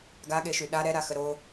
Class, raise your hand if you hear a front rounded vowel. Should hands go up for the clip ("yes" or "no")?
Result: yes